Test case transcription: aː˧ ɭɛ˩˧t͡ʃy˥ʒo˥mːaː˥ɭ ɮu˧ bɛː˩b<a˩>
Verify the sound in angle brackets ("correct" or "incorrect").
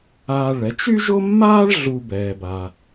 correct